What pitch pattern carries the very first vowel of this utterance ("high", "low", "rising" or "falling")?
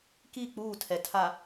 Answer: falling